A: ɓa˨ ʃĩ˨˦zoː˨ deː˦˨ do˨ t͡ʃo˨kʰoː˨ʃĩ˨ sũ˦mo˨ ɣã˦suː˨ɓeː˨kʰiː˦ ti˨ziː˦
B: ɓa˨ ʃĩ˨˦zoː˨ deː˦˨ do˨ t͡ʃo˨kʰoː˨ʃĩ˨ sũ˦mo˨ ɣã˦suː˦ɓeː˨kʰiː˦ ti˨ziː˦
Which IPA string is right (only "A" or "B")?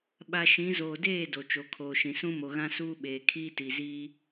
B